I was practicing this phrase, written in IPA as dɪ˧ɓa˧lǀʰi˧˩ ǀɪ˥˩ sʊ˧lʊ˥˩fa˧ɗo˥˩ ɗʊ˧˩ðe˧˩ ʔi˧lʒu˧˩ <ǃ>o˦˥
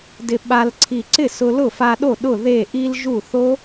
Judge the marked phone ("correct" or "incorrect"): incorrect